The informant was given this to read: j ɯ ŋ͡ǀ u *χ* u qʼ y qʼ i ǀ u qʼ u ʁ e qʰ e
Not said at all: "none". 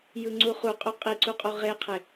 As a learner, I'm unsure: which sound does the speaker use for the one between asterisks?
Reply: χ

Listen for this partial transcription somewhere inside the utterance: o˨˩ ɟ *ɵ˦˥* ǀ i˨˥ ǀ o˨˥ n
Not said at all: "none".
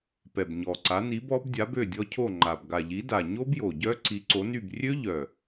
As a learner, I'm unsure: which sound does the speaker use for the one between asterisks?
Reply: œ˦˥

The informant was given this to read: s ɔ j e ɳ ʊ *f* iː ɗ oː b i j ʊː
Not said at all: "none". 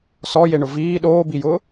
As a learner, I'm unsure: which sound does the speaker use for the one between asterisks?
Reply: v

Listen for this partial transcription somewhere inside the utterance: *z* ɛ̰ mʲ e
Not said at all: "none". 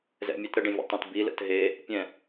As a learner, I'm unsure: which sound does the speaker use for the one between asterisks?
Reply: z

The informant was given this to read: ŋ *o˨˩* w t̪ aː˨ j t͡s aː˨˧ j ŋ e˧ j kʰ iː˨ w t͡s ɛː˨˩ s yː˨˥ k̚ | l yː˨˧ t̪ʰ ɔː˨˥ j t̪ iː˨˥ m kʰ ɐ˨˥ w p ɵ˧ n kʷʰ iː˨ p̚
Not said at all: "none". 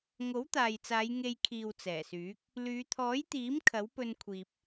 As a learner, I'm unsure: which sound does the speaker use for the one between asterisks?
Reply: o˨˥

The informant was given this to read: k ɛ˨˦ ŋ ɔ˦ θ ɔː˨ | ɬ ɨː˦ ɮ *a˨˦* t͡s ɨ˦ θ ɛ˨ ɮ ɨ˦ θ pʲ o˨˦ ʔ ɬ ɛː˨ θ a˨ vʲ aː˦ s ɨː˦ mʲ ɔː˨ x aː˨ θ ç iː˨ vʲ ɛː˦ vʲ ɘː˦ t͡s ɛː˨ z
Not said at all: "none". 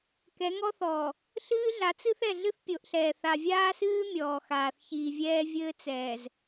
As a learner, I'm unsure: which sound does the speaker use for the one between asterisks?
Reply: a˨˦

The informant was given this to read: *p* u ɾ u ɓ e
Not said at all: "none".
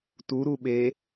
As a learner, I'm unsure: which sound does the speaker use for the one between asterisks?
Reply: t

